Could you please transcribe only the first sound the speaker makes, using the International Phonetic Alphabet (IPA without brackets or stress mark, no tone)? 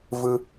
v